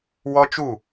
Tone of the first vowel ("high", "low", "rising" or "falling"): high